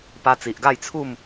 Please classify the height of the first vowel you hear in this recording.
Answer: low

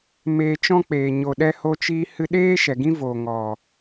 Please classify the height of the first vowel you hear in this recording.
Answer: mid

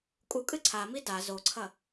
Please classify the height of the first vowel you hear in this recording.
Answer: high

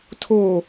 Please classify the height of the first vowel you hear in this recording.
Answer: mid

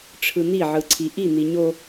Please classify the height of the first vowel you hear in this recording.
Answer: high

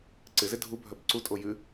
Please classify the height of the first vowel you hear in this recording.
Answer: high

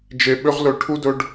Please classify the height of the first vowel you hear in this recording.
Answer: mid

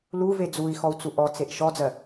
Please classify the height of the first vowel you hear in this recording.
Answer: high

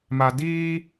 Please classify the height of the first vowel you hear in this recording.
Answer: low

